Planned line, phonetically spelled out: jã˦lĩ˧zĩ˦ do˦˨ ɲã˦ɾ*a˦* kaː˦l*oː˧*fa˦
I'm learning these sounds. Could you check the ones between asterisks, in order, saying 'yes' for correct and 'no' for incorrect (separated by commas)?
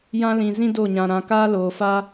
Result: no, yes